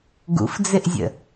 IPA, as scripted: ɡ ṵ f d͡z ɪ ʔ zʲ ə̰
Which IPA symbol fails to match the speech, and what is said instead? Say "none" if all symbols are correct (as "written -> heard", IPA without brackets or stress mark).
none